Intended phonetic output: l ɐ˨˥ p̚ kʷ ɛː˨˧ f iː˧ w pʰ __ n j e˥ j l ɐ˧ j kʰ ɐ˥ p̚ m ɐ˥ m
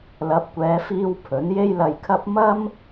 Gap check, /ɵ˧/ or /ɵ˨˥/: ɵ˨˥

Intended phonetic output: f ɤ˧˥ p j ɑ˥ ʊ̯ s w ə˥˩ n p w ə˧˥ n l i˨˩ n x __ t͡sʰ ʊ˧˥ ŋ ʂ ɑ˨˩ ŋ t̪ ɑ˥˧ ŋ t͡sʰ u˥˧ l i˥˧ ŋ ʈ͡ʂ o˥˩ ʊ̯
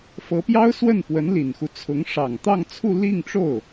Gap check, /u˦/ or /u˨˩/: u˦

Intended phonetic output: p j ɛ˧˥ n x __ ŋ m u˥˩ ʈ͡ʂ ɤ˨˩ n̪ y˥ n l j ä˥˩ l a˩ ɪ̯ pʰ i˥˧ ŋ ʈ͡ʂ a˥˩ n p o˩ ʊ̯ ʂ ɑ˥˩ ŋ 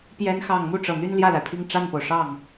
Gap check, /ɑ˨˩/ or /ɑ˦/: ɑ˨˩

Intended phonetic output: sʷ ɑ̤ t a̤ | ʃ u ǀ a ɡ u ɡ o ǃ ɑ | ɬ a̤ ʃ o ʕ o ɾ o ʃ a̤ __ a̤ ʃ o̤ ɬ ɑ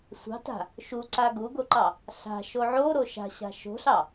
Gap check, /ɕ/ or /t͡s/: ɕ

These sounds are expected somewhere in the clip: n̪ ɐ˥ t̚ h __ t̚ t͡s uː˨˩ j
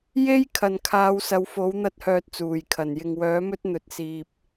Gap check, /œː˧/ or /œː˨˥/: œː˧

